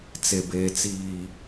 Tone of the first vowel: low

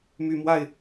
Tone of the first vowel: low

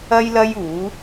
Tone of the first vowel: high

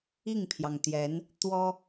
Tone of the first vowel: falling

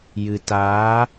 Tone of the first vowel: low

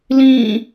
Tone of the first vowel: falling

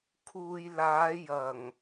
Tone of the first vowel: low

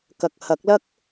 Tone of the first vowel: low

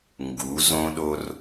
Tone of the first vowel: rising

